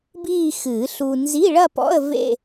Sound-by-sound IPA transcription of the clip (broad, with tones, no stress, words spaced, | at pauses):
biː˥˧xɨː˨˩˦ɬu˧ nzi˧˥˧ɭɐ˥˧pɔ̰˧˥˧ə̯ vḛ˥˧